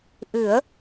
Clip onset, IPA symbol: ʔ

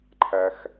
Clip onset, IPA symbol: ǃʰ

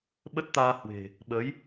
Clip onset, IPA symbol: ɓ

